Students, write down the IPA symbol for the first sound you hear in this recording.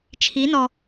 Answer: t͡ʃʰ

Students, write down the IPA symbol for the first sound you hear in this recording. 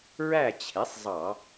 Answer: ɹ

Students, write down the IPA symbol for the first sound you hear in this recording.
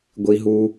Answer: ɡʷ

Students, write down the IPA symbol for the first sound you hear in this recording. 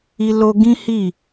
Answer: i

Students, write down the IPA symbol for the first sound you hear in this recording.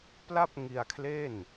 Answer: p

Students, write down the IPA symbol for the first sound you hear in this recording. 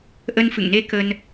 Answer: ʔ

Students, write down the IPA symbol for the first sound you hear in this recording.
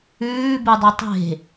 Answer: ʉː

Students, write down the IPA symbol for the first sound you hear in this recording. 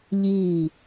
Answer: ʎ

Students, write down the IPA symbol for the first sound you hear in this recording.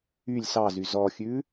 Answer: y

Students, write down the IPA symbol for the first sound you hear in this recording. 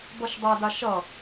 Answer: b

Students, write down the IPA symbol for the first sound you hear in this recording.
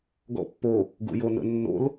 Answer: ɡ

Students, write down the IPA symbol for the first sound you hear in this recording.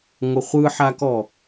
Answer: ŋʷ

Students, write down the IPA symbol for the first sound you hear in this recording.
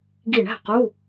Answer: ɡ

